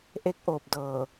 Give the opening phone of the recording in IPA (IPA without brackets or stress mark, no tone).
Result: ʔ